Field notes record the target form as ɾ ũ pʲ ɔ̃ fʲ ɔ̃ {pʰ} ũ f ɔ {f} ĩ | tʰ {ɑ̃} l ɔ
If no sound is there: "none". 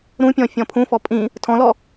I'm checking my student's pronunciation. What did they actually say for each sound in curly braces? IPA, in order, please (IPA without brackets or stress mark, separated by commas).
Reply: pʰ, pʼ, ɔ̃